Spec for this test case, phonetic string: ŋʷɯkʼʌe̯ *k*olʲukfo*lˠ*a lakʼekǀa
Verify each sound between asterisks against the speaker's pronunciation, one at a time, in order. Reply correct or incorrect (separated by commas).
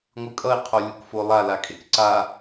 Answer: incorrect, correct